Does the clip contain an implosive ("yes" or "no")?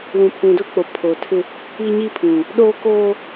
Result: yes